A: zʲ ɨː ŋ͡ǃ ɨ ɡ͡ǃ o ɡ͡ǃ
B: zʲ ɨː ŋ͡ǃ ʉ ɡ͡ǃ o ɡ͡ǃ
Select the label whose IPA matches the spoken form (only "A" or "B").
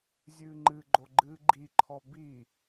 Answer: A